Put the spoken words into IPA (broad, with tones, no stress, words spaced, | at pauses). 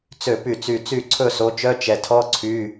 t͡sø˥˨py˥˨t͡sy˥˨ t͡sy˥˨ǀʰɵ˥˨so˨˥t͡ʃœ˧˥˧ t͡ʃɛ˨tʰɔ˧˥˧ ǀʰy˧˥˧